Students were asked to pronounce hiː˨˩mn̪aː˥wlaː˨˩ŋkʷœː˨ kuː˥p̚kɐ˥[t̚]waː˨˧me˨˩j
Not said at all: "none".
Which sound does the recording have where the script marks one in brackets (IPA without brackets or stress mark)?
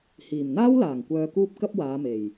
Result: p̚